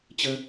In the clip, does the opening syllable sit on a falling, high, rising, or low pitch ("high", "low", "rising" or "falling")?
high